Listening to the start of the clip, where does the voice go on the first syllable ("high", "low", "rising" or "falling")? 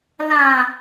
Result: low